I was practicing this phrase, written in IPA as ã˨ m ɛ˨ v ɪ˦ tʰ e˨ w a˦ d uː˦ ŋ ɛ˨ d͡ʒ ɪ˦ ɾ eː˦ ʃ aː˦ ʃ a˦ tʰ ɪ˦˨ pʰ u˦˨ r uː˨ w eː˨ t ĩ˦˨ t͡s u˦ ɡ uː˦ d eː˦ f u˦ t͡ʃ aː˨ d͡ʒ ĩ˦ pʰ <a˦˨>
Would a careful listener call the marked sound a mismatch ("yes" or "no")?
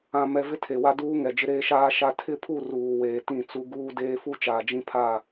no